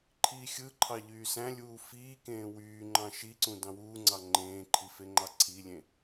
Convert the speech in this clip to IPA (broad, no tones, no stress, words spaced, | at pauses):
ǃʰiːxʲɯǃʰɑ ʎyːsæ̃lʲuː fiːkẽː wyːŋ͡ǃɑ̃ ʃiǀũ dɑ̃wuːŋ͡ǀɑ ŋ͡ǃẽːǃʰifeŋ͡ǃɑ ǀʰilʲẽ